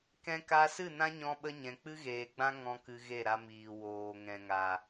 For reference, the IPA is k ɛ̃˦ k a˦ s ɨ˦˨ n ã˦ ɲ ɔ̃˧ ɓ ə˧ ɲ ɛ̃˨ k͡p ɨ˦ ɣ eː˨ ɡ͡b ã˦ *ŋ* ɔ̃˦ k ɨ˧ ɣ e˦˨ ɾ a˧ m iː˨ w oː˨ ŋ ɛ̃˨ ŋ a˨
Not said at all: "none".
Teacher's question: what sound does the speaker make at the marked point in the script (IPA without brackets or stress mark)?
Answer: ŋ